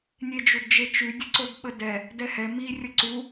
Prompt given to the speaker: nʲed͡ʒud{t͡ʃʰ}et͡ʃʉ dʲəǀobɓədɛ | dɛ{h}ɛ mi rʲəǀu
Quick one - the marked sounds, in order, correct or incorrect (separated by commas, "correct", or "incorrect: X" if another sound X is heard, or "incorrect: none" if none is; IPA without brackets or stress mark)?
incorrect: d͡ʒ, correct